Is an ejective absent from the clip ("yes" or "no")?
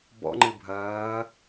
yes